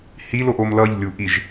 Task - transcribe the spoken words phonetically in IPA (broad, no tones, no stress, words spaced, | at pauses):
hiloʔom lʌʎlʲu ʔiʒ